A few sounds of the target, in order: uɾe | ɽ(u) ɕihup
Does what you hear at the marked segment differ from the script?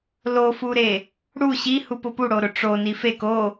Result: no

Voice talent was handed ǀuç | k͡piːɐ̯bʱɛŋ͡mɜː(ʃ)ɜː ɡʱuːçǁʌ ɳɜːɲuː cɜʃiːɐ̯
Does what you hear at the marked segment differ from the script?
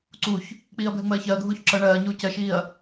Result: yes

